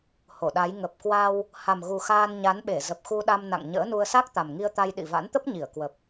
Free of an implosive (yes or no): no